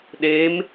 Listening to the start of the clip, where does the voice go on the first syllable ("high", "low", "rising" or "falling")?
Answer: rising